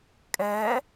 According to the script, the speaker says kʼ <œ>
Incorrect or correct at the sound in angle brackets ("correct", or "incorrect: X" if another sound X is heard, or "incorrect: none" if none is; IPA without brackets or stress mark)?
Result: incorrect: ɛ